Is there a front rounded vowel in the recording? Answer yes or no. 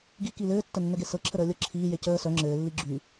yes